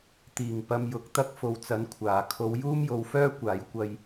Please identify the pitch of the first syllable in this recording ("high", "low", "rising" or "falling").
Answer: low